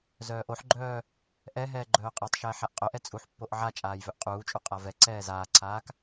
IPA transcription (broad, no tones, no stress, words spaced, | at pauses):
zœːʔoħɡ͡ǃœː | ʔɛ ɦɛːɡ͡ǃœːqʼɛtˤʃɛːħ aʔqʼœʔɛ t͡sʼuħpːoʔ ʕat͡ʃʼaːj vœʔqʼuːt͡ʃʼu qʼavɛǀɛː zaːǀʰaːk